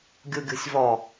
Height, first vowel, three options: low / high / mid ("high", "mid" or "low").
high